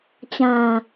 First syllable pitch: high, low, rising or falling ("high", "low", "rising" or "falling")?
low